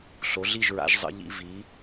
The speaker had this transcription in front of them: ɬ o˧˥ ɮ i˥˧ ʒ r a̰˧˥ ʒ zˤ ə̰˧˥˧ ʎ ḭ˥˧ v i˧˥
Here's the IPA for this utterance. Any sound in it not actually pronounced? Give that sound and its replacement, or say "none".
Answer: r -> ɹ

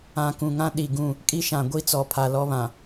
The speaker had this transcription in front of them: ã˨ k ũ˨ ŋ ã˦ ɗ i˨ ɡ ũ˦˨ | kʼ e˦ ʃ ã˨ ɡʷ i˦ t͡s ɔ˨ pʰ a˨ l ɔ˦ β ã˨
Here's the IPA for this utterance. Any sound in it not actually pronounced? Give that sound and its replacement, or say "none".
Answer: e˦ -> i˦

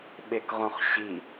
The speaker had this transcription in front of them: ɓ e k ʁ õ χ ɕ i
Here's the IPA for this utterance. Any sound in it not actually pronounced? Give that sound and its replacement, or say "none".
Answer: none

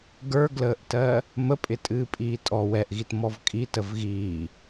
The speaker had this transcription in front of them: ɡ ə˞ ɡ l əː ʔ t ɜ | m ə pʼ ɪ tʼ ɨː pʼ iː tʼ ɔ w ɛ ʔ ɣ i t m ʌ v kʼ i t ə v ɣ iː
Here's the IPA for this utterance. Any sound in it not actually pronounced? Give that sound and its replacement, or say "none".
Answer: ʌ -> ɔ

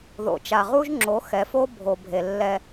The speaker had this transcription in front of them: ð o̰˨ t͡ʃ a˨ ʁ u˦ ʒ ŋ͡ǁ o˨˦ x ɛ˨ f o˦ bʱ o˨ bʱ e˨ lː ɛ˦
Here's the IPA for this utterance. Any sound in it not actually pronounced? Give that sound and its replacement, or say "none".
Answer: none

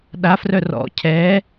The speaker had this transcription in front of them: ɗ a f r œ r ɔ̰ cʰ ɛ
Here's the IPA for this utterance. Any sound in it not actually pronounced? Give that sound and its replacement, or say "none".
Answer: none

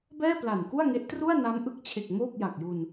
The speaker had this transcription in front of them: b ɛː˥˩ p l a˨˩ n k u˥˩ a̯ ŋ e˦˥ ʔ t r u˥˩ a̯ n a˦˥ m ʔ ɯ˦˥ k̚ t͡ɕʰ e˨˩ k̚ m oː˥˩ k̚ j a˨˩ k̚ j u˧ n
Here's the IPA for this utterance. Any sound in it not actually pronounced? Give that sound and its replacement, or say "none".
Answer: none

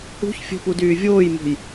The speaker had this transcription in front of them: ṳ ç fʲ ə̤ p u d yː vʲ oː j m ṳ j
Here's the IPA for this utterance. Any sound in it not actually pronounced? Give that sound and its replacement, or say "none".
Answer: none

